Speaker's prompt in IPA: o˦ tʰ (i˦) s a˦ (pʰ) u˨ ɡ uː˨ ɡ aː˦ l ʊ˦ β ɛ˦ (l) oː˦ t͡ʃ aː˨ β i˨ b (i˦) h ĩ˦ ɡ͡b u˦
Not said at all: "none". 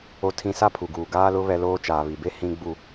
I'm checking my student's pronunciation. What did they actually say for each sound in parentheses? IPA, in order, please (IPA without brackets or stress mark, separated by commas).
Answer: ĩ˦, pʰ, l, e˦